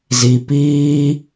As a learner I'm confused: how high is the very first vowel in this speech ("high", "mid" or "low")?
high